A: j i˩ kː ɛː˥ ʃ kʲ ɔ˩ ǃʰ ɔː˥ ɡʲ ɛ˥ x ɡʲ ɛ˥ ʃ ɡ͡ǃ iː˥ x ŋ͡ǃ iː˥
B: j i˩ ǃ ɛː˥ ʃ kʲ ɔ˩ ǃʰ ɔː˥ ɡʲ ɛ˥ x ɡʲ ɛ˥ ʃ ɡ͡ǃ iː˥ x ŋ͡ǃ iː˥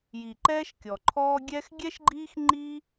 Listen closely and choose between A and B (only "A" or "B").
B